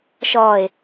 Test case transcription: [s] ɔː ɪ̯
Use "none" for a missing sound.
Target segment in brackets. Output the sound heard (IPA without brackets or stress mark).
ʃ